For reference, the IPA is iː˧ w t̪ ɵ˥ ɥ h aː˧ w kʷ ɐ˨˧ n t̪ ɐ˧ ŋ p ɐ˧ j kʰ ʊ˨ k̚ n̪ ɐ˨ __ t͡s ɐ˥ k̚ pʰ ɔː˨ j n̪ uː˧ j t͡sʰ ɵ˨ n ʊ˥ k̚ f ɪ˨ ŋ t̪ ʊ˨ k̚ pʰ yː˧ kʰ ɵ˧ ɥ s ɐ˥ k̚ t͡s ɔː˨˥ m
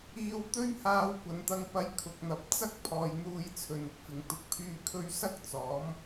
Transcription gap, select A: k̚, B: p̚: B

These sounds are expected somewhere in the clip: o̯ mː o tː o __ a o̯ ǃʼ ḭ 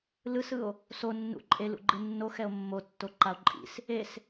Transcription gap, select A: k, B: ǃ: B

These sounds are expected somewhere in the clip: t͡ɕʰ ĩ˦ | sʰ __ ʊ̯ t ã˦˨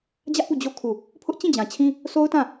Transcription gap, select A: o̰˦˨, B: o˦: B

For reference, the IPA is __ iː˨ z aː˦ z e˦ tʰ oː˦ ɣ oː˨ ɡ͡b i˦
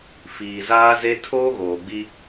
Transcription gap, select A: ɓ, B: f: B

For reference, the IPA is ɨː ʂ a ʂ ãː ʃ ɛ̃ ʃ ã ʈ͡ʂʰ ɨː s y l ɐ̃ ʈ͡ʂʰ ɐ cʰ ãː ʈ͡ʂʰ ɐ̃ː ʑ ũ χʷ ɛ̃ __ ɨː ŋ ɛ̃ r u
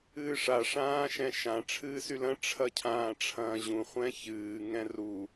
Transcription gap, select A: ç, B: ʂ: A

